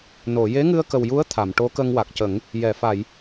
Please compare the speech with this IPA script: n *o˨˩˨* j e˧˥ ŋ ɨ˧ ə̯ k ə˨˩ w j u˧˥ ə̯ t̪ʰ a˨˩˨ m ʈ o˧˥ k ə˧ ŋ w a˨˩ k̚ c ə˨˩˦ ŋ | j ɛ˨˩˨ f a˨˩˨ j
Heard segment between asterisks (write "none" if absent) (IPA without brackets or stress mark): o˨˩˨